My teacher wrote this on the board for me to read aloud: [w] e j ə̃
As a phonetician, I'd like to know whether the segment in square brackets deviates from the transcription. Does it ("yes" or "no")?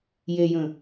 yes